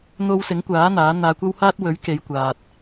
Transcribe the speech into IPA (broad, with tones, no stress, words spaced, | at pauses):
n̪o˧wsɪ˨˥ŋkʷaː˨˥ n̪aː˨˥n̪aː˧kʷɐ˥whaː˥t̚ wɵ˨˥ɥke˨˧jkʷaː˨t̚